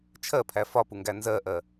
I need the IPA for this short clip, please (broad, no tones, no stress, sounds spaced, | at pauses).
t͡ʃʰ ɜ pʰ æ f ɒ p u ŋ ɡ æ n z ɜ ʔ ɜ